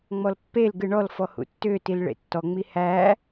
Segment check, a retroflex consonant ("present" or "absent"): present